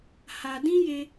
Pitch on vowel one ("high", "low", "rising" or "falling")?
low